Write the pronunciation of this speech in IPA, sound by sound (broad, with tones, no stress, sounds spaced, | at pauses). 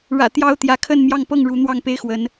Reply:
ɻ ä̰˨˩ t̪ j ɑ˦ ʊ̯ t̪ j ä˨˦ kʰ ə˥˨ n m j ɑ˥˨ ŋ p ɤ˥˨ ŋ ɻ u˨˦ n̪ w ɑ˥˨ ŋ p e˦ ɪ̯ x w ə˨˦ n